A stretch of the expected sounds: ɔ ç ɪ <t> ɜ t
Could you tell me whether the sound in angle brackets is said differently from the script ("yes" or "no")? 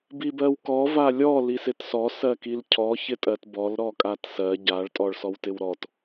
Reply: yes